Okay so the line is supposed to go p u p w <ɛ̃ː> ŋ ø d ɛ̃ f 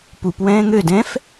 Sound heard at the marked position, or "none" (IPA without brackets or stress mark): ɛ̃ː